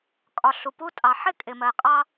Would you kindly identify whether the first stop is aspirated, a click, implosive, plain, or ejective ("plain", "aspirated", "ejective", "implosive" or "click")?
ejective